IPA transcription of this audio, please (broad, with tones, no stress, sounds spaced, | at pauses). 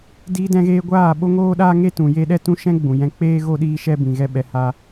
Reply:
d iː˧ d ɛ̃˧ ɣ eː˧ ɡʷ aː˦˨ ɓ o˦ ŋ oː˦ ɗ aː˦ ŋ e˦ t ũ˨ j e˦ ɗ ɛ˦ t ũ˦ ʃ ɛ̃˦ ɡ͡b ũ˨ j ɛ̃˧ k͡p eː˦ ɣ o˦ ɗ iː˦ ʃ ɛ˦ b ĩ˨ ɣ ɛ˦ ɓ ɛ˧ h a˦